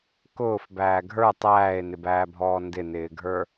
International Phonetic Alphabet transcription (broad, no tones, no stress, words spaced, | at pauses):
kʊːf bæːɡʱə˞ tˤæːe̯nɪbæːbʱɔː ndɪnɪːɡʱə˞